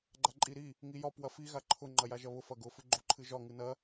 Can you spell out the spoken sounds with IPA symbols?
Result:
ɡ͡ǃ a ǃʼ i ɾ i | ŋ i j ɒ p w ɐ f i ɣ a ǃʰ ʊ ŋ͡ǃ ɐ j a ʒ ɐ β ʊ f ɐ ɡ ʊ f ɨ ɡ͡ǃ o ǃʰ ɨ ʒ ɒ ŋ ɨ n ɐ

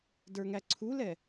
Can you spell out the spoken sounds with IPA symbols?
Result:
d ə˞ ŋ æ ǀʰ u l ɛ

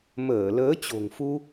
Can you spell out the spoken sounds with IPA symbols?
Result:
m əː˧˩ l əː˨˦ t͡ɕ o̤˨˩ ŋ f u˧

